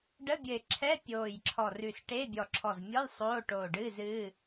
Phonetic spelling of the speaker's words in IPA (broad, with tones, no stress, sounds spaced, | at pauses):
ɖ ə˧˥˧ bʲ ɘ˧˩ ɪ̯ ǁʰ ɛ˧˥˧ pʲ oː˧˩ j ǁʰ ɔ˧˩ r ʉ˧˩ s ʈ e˧˥˧ bʲ ɔ˧˩ ǁʰ ɔ˧˩ z mʲ ɔ˧˥˧ j sˤ oː˧˥˧ ʈ oː˧˩ ɖ ɨː˧˥˧ z ɨː˧˥˧